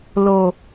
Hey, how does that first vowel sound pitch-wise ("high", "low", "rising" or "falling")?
low